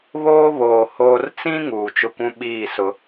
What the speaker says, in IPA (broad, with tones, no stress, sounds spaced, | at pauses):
β oː˦ β oː˨ h oː˦ r t͡s ĩ˦ ŋ uː˨ t͡ʃ ʊ˦ kʷ ũ˦ ɓ iː˦˨ s ʊ˦